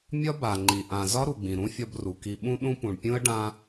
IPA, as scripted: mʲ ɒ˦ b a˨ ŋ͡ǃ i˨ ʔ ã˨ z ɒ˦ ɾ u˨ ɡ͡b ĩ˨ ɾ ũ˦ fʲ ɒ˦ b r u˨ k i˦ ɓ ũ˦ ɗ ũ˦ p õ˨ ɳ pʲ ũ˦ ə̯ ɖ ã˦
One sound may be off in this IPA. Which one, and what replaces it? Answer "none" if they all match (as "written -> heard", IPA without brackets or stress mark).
õ˨ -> ũ˨